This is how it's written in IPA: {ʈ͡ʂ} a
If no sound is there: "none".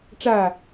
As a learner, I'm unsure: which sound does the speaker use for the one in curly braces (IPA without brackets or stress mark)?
ʈ͡ʂ